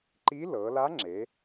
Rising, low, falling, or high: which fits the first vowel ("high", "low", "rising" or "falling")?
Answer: rising